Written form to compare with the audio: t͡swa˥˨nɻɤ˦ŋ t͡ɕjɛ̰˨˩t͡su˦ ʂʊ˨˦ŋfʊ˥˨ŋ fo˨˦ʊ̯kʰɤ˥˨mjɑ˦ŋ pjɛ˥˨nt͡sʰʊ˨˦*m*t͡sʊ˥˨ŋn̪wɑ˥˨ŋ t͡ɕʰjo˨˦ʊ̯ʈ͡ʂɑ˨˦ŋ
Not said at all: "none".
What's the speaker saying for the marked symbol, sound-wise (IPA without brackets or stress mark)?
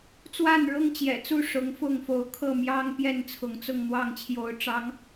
ŋ